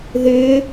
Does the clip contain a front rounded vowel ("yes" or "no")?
yes